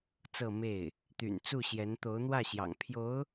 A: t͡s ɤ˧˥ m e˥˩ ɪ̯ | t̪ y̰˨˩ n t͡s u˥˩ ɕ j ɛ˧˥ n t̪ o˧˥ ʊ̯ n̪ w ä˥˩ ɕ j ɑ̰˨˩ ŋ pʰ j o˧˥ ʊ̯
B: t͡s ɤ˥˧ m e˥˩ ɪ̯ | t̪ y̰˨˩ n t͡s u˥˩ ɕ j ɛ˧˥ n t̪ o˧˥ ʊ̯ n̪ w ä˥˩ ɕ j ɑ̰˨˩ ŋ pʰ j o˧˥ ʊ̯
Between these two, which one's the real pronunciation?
B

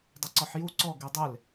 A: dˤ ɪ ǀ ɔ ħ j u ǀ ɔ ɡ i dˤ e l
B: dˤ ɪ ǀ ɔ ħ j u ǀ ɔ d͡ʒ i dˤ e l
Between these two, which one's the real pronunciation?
A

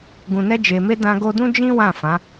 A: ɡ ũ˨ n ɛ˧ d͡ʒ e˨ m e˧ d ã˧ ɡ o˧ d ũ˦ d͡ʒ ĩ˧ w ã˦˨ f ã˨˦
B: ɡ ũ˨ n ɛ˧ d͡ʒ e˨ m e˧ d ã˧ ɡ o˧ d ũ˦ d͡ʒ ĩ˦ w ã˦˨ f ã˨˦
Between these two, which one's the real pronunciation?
B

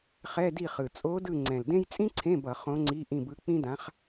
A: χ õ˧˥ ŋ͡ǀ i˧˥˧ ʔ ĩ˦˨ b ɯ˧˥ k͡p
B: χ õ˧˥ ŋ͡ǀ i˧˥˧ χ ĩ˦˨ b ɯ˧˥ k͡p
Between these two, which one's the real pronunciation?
A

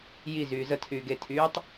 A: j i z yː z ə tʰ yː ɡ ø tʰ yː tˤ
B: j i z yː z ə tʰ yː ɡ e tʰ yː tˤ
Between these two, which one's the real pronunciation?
B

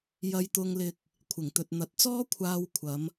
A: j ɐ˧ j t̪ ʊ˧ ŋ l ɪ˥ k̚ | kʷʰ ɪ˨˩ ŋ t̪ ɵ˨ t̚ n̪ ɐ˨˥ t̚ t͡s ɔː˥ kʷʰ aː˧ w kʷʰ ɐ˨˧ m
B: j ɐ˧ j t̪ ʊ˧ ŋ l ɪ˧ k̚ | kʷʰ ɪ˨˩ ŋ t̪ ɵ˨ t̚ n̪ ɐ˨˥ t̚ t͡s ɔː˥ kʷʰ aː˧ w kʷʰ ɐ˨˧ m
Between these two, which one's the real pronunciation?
B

